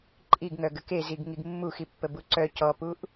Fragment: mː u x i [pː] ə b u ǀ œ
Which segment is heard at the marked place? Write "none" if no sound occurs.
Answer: pː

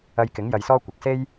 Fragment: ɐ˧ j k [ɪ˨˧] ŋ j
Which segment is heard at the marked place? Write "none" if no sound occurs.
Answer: ɪ˨˥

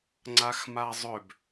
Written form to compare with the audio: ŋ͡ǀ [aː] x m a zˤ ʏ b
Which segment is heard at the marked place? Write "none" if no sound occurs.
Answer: a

